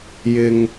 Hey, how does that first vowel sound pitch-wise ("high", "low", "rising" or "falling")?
low